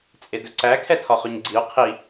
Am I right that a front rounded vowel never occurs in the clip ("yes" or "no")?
yes